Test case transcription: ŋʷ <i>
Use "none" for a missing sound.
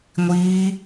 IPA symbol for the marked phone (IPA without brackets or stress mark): iː